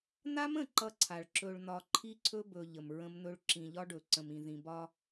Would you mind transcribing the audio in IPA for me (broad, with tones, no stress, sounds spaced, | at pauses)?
n̪ a˦ m ə̃˦˨ ǃ ʌ˦ ǀʰ a˨ ɭ ǁ ɵ˨ ɭ n̪ ɒ˨ ǃʰ i˦ ǀʰ ɵ˦ b ɵ˨ ʎ ə˨ m ɹ ə̃˦ m n̪ ɵ˦ ɭ ǁ ĩ˨ ʎ ɒ˦ ɖ ɵ˨ ǀ ə̃˨ m ĩ˨ ð ĩ˨ b ɒ˦